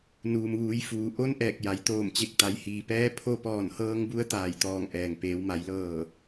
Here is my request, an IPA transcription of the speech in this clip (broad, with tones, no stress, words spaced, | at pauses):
nuː˩mʋuː˩˧j fuː˩ ʔo˧n ʔɛː˧˩k̚ja˩˧jt̪oː˧˩mt͡ɕe˧˩k̚ t̪a˩˧jhiː˩pɛː˧˥ pʰo˧pɔː˧˩nhɤː˧ŋbu˧˥ə̯ t̪aː˧˩jt̪ɔː˧˩ŋʔɛː˩ŋ peː˩˧wma˩˧jlɤː˧˩